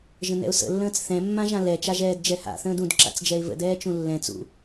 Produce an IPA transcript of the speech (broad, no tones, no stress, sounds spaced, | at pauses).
ʒ ə̃ n ɛ̰ ʊ̯ s ə̰ lː ə̃ː t͡s θ ɛ̃ mː ã ʒ ã l ɛ t͡ʃ a ʒ ɛː d d͡ʒ ɛ h a̰ θ ə̃ː d ũ d ǁ a̰ t͡s d͡ʒ ɛ ɪ̯ v ə̰ d ɛː t͡ʃ ũ lː ɛ̃ t͡s ṵ